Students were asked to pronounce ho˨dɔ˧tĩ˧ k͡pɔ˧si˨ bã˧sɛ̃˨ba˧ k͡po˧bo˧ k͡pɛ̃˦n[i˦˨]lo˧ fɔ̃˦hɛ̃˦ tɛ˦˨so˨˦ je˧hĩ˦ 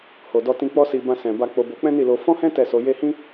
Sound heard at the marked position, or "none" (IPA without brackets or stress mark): i˦˨